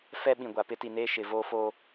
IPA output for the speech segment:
f ɛ˦ ɓ ĩ˨ ɡʷ a˨ p ɪ˦ t i˨ n eː˦ ʃ ɪ˨ v oː˦ f oː˦

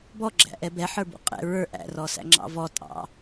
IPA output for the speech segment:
b ɔ ɡ͡ǁ æ̰ ʔ ɛ b ɛ ħ ə˞ b ṵ qʼ ɛ̰ ɹ ə˞ ʔ æ̰ r ɔ s æ̰ ŋ͡ǁ ɑ̰ v ɔ tʼ ɑ̰

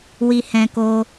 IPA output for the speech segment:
w i˧ h ɛ̃˧ k o˧

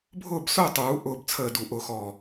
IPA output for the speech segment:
bʱ ʊː˦˨ b s ʊː˦˨ tˤ uː˩˧ ʔ ʊː˦˨ b t͡sʰ əː˦˨ d u˧˩˧ ʔ ʊː˦˨ x ɔ˦˨

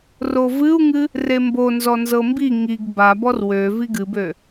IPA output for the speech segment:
r o v ɨ u̯ ŋ ɨ | r e m b o n z ɔ n z ɤ m b i ŋ i ɡ b a b ɔ r w ø v i ɡ ɨ b ø

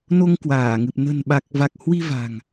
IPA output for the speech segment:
n o˧ ŋ k w aː˧˩ ŋ ɨ˨˩ p̚ n ə̤˨˩ n ɓ a˨˩ k̚ v a˨˩ k̚ h w i˧ v a̤˨˩ ŋ

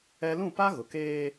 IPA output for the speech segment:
ɛ˦ l ũ˦˨ p a˦ ɣ ʊ˨ k eː˦

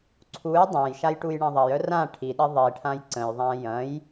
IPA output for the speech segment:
ǀʰ u j dˤ ã j ʃ a j ʈ u j ɳ ɐ̃ ðˤ ɐ j œ r ã ʈʰ i ɗ i ðˤ i ʈʰ ã j ǀ ə̃ j ðˤ ã j ɐ̃ j

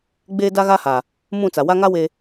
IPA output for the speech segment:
ɡ͡b eː˦ d a˦ ɣ aː˦ h a˨ | m ũ˦˨ t͡s a˨ w a˦ ŋ a˦ w eː˨

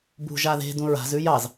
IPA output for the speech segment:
b ṳ ʒ a ð e̤ d ũ ɹ a̤ z ʉ j ɑ z

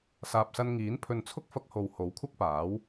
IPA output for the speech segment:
s aː˨ p̚ s ɐ˧ n ŋ iː˨˥ n pʰ ɵ˨ n t͡sʰ ʊ˥ k̚ f ɐ˧ k̚ h o˨ w h o˨˥ w kʷʰ ɐ˥ k̚ p aː˨˥ w

